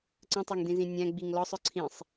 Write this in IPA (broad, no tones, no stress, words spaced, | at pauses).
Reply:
ǀə̃tˤɜŋdĩzĩ nʲæ̃ɡ͡biŋ lɔsˤʊ ǀʰĩsˤ